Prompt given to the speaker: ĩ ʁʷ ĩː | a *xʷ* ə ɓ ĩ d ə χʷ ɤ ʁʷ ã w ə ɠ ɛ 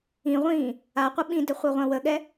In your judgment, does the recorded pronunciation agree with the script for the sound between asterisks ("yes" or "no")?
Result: no